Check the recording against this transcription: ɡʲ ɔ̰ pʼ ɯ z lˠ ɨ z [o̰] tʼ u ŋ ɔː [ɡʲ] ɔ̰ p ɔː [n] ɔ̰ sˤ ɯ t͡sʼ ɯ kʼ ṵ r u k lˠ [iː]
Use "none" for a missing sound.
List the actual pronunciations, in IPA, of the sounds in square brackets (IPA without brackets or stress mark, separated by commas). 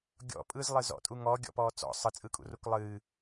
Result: ɔ̰, ɡʲ, t͡s, ɨː